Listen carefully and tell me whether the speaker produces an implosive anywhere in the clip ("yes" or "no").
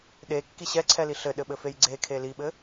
yes